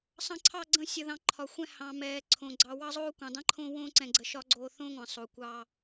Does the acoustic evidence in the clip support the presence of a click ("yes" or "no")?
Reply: yes